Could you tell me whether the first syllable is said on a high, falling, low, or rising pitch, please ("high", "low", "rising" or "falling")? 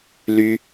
high